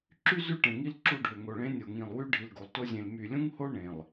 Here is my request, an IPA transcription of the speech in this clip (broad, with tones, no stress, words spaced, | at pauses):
ǁy˦zy˦˨ʈẽ˨ŋi˦l ǁu˦˨ɖʱø˨ ŋo˨ɭẽ˦nʲo˨ ŋĩ˨lˠwy˦ ɖʱi˨lɡo˨lˠto˦zʲẽ˨l my˨lʲũ˦ŋho˦ ɳẽ˨lˠ